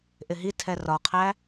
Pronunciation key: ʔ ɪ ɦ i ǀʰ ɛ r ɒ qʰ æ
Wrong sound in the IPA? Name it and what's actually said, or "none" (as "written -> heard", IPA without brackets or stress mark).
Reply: ǀʰ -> tʰ